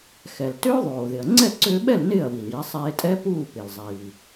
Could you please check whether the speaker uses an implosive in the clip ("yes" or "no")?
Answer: yes